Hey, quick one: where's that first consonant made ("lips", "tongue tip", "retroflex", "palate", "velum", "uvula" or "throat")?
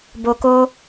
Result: lips